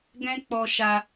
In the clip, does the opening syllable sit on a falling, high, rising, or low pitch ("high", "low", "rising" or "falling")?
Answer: high